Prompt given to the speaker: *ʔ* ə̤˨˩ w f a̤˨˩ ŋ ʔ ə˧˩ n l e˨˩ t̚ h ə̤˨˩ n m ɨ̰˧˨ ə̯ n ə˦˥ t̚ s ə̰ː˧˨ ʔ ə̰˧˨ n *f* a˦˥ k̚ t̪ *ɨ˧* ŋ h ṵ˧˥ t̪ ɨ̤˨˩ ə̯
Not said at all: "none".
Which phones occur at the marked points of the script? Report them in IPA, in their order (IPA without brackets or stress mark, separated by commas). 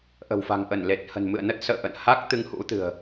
ʔ, h, ɨ˧